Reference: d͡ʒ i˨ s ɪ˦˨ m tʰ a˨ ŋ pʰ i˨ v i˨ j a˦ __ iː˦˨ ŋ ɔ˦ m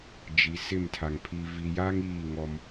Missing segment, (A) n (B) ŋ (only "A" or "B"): B